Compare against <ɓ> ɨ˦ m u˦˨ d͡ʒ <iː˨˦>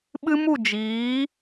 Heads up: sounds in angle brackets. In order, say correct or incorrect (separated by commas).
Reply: correct, correct